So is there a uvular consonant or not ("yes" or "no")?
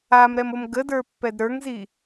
no